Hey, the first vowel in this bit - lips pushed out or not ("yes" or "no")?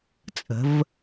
no